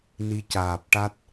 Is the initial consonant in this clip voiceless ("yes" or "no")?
no